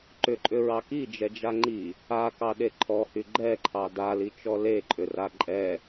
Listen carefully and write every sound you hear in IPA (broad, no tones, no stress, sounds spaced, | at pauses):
ǃ ʏ ǃʼ ʏ ɹ ɑ k i d͡ʒ ɛ d͡ʒ a ŋ͡ǃ i | a k ɑ ɗ e ǃʰ ɔ h y ɡ͡ǃ ɛ ǃʰ ɑ d a l i t͡ʃ ɔ l e ǃʼ ʏ r a ǃʼ ɛ